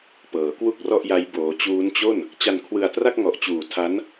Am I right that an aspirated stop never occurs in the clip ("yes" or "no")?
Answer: no